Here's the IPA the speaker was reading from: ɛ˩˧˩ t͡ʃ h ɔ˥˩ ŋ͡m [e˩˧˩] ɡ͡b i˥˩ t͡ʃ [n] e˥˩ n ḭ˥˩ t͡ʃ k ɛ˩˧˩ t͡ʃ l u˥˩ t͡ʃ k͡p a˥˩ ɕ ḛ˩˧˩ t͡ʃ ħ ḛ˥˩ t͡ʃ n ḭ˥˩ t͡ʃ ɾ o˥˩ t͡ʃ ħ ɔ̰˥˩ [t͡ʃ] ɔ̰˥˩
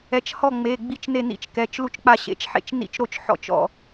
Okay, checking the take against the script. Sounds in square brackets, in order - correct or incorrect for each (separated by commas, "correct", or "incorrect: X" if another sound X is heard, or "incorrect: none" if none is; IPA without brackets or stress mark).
correct, correct, correct